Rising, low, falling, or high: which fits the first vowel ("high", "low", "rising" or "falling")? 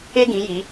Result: high